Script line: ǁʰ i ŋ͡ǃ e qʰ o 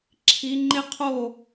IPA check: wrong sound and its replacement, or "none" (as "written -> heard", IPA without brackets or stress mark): none